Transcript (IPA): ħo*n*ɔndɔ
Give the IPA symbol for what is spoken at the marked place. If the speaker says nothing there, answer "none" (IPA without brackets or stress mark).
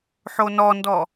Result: n